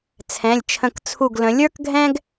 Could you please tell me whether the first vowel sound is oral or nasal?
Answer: nasal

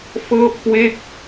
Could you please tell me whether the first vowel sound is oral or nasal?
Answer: oral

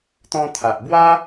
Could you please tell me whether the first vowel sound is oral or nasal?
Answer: nasal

